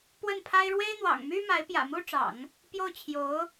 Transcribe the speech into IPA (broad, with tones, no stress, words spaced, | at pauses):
pwə˥˩npʰa˥ɪ̯ ɻwe˥ɪ̯n̪wɑ̰˨˩ŋmy˥ ma˧˥ɪ̯pjä̰˨˩mu˥ʈ͡ʂɑ̰˨˩˦ŋ | pjo˥˩ʊ̯t͡ɕʰjo˧˥ʊ̯